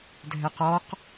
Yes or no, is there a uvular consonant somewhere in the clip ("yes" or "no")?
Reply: yes